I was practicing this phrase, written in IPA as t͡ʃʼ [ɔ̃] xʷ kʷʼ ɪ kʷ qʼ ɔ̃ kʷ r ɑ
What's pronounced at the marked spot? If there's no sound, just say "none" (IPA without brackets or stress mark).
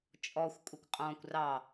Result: ɔ